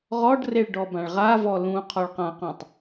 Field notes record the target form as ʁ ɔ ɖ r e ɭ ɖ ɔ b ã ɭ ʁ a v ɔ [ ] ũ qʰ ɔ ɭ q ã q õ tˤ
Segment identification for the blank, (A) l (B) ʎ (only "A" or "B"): A